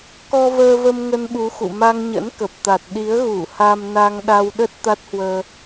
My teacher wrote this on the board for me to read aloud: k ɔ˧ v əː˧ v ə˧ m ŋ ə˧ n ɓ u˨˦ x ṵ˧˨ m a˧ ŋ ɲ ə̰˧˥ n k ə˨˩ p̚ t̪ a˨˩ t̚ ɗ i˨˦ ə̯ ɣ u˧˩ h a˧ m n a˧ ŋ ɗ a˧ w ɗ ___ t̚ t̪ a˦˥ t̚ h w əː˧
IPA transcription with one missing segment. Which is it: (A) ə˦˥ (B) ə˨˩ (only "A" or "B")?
A